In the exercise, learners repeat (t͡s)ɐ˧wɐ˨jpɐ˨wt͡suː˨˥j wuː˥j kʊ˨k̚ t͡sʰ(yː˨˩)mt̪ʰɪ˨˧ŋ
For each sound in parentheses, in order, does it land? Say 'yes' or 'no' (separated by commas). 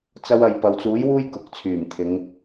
yes, yes